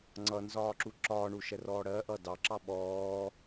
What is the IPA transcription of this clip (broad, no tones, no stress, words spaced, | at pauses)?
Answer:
ŋ͡ǀʌnzɒːǁu ǁɒːɳuʃɛrɔː ɽɜʔʌ dɑǁɑ ɓɔː